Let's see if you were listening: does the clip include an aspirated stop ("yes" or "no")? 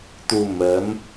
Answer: no